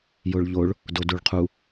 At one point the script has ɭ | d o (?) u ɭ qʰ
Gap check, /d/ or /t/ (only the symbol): d